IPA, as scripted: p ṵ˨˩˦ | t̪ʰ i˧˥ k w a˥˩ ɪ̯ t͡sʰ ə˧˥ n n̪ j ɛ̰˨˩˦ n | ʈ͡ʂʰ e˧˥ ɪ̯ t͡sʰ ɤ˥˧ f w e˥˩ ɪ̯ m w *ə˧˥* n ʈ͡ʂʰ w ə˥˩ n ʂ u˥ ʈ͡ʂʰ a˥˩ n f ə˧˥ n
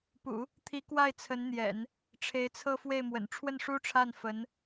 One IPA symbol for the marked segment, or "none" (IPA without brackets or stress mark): ə̰˨˩